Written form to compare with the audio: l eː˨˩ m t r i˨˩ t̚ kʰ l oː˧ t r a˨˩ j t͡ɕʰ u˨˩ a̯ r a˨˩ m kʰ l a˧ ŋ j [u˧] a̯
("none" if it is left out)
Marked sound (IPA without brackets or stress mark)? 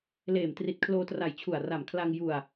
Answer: u˧